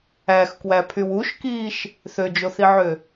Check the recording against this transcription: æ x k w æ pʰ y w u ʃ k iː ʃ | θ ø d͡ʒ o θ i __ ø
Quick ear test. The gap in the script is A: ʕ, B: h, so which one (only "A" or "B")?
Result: A